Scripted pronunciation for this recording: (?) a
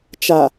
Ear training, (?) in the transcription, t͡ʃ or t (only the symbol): t͡ʃ